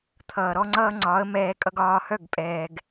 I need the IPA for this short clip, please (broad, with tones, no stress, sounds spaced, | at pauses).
t̪ʰ ʌː˨ ɾ ɔ˦ ŋ͡ǀ ʌː˦ ŋ͡ǀ ɒ˨˦ ə̯ m ɛː˧ kʼ ʌ˧ ɡ ɒː˧ h œ˦˨ ɡ pʼ ɛː˨ ɡ